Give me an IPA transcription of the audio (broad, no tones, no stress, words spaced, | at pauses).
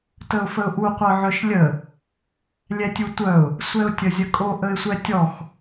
təʊ̯fəʊ̯ʔu qʷœʕœʃlʲə | lʲɛtʲutʷœʊ̯ | sʷɛʊ̯tʲəzʲəkʼo ʔəɪ̯sʷɛtʲɔx